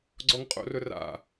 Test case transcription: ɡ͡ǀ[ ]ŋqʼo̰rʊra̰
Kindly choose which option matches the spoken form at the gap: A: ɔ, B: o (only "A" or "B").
A